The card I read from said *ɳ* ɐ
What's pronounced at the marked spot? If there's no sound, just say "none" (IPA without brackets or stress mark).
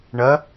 ɳ